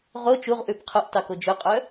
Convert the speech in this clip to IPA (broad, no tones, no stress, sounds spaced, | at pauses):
ʁ o t͡ʃ u ʁ ʔ ʉ b qʰ o ʔ t ɑ k o d͡ʒ ɵ qʼ œ